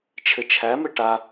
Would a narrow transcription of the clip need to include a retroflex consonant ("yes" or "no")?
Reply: yes